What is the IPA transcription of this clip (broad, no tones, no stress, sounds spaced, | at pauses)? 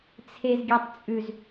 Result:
t͡sʰ e z ɡʲ e tˤ t͡sʼ ʉ z